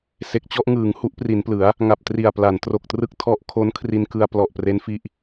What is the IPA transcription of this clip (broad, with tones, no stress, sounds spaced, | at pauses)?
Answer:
s e˨˩ k̚ t͡ɕ ɔ˥˩ ʔ ŋ ɯː˩˦ ŋ h u˦˥ ʔ p r i˩˦ n p l ɯ˩˦ a̯ | ŋ a˨˩ p̚ t r i˨˩ a̯ p l a˩˦ n t r o˨˩ k̚ t r ɯ˥˩ k̚ tʰ ɔ˦˥ ʔ kʰ o˦˥ n kʰ r i˧ n k ɯ˧ a̯ p l ɔ˨˩ ʔ p r e˦˥ n f i˦˥ ʔ